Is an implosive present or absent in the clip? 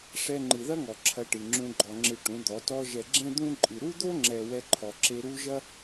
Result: absent